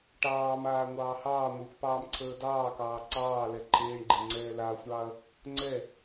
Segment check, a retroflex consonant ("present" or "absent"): present